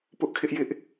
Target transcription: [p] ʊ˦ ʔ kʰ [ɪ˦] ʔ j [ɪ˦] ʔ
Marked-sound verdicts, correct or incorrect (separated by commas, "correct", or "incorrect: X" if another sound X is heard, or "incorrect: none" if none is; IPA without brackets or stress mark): correct, correct, correct